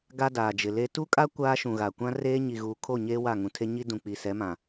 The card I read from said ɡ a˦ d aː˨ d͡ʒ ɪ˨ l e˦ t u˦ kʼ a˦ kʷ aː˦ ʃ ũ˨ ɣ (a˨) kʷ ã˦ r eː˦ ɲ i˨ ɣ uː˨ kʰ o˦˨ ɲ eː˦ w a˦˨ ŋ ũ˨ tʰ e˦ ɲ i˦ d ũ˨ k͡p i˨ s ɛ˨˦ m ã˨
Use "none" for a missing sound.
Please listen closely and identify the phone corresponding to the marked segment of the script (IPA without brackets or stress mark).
a˨